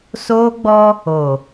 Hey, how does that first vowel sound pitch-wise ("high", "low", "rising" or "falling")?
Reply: high